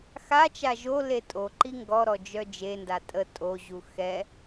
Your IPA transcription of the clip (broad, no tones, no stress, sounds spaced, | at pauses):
x a t͡ʃ a ʒ o l e tʼ o ǃ i ŋ ɡ ɔ ɾ ɔ d͡ʒ œ d͡ʒ e n d a tʼ ə tʼ o ʑ u x ɛ